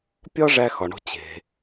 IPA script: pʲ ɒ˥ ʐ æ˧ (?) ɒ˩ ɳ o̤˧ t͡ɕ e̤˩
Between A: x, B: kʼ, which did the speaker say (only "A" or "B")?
A